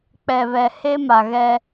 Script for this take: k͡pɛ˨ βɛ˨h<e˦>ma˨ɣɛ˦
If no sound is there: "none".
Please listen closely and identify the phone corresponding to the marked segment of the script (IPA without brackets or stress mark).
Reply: e˦